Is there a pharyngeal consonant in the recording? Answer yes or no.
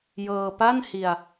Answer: no